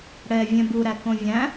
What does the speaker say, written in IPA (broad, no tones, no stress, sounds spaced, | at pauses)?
ɽ ɛ vʲ ɛ̃ b u ɾ æ k õ vʲ æ̃